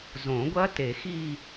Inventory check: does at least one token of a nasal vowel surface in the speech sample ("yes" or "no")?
yes